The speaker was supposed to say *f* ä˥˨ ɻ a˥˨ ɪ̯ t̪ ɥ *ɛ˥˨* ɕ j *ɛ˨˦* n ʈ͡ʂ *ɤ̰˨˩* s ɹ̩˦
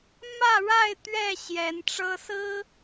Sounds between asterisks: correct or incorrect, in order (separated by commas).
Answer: incorrect, correct, correct, incorrect